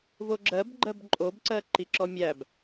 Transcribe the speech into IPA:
v o ɡ͡ǁ ɜ b ɡ͡ǃ ɜ b ǃʼ o b ǀ ɜ ǃ i ǁ ɔ mʲ æ b

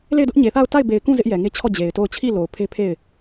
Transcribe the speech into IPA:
l e˦˨ ɪ̯ d ʊ˦ ʔ ɲ e˨ θ a˦˨ ʊ̯ t a˦˨ ɪ̯ b e˨ ɪ̯ k ũ˦˨ z ɪ˦ ʔ j ɛ˨ ŋ e˦ t͡ɕʰ ɔ˦˨ d͡ʑ e˨ ɪ̯ t o˦˨ ʊ̯ t͡ɕʰ i˦˨ l o˨ ʊ̯ pʰ e˦ pʰ e˦˨ ɪ̯

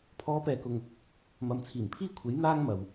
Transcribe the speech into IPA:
pʰ ɔː˨˧ p ɛː˨ k ʊ˨ ŋ | m ɐ˨ m t͡sʰ iː˨˩ m pʰ iː˥ kʷʰ e˨˥ j n̪ aː˥ ŋ m ɐ˨ w

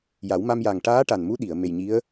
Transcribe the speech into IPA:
j a˨˩˦ w m a˧ m j a˨˩ ŋ ʈ aː˧˥ ʈ a˨˩ n m u˧˥ ɗ i˨˩˨ ə̯ m e˨˩ j ɲ i˧˥ ə̯

